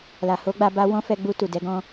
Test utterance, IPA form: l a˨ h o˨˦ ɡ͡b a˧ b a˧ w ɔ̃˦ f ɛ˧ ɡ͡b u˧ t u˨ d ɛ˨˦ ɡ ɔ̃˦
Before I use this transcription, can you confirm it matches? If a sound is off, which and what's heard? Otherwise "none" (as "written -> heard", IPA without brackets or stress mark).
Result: none